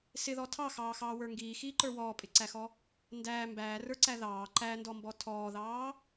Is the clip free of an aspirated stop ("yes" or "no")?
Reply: no